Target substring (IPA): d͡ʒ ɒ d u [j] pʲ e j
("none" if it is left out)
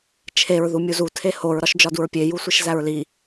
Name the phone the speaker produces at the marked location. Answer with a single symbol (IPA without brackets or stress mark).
ɹ